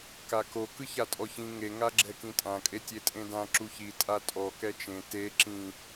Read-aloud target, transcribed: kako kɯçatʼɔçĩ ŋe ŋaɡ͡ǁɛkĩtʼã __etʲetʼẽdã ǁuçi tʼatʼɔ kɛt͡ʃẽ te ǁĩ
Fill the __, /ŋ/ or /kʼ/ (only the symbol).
kʼ